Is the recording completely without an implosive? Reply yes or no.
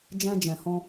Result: yes